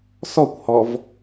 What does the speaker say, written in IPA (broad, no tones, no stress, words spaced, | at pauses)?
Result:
sɔkʷhɔv